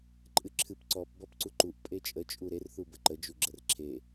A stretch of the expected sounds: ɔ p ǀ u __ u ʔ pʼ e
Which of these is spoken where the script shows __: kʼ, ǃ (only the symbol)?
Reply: ǃ